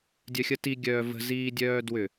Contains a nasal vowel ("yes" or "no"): no